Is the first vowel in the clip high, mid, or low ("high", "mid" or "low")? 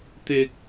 high